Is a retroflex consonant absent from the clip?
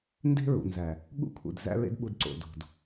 yes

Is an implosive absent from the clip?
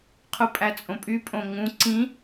yes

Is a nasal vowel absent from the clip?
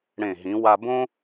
no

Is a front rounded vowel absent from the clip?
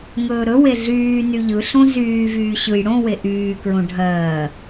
no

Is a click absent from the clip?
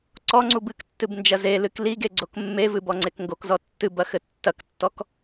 no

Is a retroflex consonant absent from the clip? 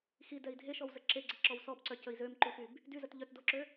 yes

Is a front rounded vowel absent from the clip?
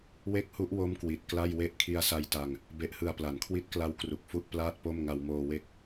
yes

